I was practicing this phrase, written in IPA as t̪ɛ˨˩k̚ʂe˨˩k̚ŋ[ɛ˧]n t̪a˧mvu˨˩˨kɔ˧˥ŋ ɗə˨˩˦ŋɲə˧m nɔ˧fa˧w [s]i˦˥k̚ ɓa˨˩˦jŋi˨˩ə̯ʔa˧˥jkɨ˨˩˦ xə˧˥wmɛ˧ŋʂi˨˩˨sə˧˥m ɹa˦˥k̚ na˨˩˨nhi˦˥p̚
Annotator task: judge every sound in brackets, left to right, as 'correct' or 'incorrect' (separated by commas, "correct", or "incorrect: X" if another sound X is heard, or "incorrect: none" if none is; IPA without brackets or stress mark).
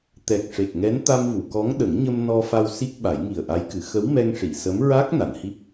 incorrect: ɛ˧˥, correct